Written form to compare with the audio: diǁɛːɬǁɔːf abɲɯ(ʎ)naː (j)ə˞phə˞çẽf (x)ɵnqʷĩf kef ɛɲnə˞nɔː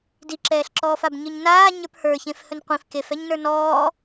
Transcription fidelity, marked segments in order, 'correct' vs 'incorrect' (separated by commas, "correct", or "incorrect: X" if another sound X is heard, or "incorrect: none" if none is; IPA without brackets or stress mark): incorrect: ɲ, incorrect: ɲ, incorrect: h